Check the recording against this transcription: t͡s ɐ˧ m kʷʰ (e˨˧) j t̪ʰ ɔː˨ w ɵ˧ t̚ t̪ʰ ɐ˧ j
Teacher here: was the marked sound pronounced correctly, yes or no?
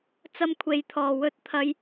yes